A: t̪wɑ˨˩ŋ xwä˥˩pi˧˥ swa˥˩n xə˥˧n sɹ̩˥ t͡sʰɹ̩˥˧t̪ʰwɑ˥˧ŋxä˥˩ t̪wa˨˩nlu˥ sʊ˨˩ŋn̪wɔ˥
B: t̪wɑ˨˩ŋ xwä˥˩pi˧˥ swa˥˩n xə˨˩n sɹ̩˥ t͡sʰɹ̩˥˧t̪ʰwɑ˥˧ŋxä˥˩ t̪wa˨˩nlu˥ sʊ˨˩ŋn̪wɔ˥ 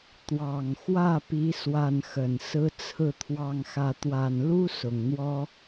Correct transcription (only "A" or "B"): B